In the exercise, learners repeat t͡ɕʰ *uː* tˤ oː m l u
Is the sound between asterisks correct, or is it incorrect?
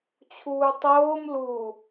correct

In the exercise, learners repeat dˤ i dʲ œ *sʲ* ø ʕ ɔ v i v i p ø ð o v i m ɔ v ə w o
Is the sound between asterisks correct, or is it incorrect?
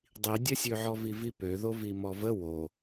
correct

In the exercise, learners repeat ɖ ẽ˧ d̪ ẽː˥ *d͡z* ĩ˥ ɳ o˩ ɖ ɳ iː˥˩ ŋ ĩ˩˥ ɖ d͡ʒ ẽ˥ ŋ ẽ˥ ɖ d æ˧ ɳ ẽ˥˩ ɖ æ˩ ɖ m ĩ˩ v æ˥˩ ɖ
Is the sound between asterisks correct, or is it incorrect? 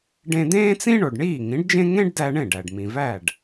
incorrect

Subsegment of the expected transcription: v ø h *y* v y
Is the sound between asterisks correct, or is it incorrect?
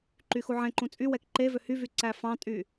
correct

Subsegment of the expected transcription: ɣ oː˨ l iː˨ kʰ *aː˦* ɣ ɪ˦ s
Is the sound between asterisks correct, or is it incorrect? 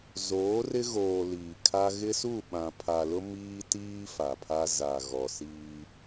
incorrect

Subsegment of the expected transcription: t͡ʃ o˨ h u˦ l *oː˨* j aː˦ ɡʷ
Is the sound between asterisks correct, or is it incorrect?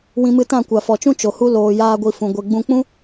correct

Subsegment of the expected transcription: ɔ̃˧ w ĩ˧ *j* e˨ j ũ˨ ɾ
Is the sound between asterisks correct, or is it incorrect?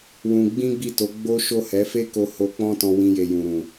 correct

